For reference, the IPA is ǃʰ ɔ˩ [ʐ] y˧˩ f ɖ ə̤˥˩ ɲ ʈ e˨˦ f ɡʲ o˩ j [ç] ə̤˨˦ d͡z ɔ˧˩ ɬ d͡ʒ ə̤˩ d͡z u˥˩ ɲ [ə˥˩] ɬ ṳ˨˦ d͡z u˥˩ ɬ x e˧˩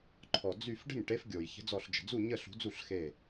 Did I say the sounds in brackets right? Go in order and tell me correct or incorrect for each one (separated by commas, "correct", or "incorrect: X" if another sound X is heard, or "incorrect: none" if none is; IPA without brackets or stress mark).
incorrect: d͡z, correct, correct